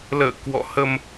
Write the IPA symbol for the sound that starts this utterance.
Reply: l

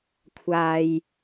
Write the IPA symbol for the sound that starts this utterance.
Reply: kʷʰ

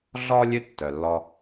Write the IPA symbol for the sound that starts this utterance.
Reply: ɮ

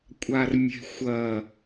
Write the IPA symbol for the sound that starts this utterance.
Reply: kʷʼ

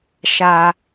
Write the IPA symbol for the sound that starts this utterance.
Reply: ʃ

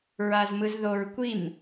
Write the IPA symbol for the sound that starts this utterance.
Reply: ɹ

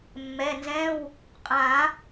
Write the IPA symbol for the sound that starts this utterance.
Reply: mː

